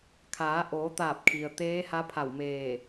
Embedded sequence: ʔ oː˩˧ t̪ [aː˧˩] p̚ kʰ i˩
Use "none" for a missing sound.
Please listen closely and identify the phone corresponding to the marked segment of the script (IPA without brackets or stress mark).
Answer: aː˧˩